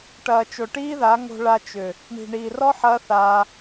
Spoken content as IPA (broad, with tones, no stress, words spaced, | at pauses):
ʈɐː˨t͡ʃo˨ʈiː˦ða˨˦ ŋo̤˧ɭa˧t͡ʃʏ˨ | ɳi̤˨ɳiː˨rɔ˦ ħɐː˦θaː˧